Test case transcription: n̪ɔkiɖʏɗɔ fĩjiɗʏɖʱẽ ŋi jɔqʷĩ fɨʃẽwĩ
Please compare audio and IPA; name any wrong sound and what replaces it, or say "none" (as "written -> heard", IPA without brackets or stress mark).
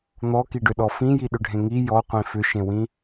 ɨ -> ʏ